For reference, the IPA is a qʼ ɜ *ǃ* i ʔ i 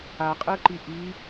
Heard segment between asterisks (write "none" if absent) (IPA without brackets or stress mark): ǃ